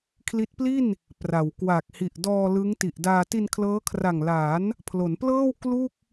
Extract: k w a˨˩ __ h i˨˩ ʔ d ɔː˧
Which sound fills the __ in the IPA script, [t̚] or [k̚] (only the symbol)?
k̚